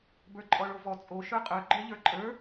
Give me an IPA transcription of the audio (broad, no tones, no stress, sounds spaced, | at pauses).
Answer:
b ə˞ ǃʼ ɔ ɭ o v ɔ t͡sʼ o ʃ ə˞ qʼ ə˞ ɡ͡ǃ ə˞ ʎ ə˞ ǃʼ ə˞